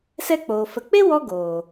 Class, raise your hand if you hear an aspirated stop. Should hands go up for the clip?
no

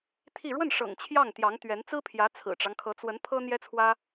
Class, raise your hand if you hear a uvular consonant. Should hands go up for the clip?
no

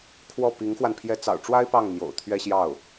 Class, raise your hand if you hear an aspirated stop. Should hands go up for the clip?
yes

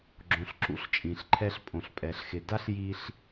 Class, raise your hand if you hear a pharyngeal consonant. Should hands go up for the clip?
no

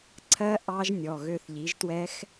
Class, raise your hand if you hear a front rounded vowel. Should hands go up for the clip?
yes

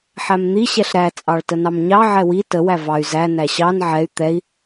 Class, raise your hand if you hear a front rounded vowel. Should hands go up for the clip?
yes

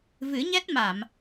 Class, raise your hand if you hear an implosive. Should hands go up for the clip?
no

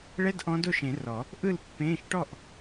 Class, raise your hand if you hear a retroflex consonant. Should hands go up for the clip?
yes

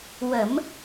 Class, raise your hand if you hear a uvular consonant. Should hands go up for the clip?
no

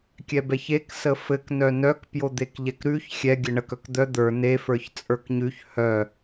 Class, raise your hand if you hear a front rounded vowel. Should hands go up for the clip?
yes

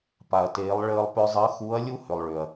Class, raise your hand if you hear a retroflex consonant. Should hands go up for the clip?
yes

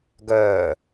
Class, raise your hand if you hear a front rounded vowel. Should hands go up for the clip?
yes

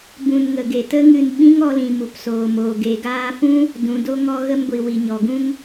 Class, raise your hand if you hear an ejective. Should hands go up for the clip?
no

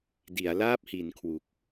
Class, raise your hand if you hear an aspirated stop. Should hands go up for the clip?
yes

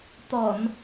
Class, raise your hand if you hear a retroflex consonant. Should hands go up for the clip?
no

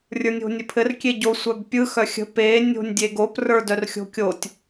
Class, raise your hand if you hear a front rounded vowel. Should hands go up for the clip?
yes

